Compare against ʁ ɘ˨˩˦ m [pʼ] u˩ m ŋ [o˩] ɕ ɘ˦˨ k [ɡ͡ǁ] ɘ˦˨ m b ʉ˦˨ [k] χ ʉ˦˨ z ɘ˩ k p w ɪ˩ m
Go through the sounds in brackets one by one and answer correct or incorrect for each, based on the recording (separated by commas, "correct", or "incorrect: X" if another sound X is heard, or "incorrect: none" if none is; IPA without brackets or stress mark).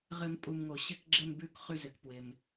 correct, correct, correct, correct